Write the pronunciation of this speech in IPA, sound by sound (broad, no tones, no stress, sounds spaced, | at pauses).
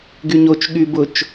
ɡ y ɲ o t͡ʃ ɠ y b ʊ t͡ʃ